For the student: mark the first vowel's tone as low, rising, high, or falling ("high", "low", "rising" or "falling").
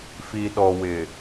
low